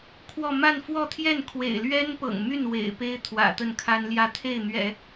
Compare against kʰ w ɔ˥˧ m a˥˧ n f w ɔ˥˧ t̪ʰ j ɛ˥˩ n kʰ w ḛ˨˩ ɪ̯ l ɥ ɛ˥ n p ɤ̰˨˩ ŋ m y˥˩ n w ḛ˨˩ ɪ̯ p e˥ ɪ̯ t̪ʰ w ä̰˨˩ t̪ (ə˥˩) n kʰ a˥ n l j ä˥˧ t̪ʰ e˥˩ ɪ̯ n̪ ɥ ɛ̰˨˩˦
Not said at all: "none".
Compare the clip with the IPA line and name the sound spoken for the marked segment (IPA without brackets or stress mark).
ə˥˩